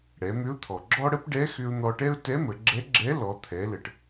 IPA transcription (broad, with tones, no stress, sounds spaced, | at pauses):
ɽ ɛ˩˧ m ʏ˧˥ ʊ̯ t̪ʰ ɔ˩ ɡ͡ǁ ɔ˥ ɽ ə˥ p ɖ ɛ˧˥ x ʏ˧ ʊ̯ n̪ ɔ˧ ʈ ɛ˥ ʊ̯ t ɛ˧˥ m ə˩˧ ɡ͡ǁ ɛ˧˥ ɡ͡ǁ ɛ˧˥ l ɔ˩˧ t̪ʰ ɛ˩˧ l ə˩ ʈ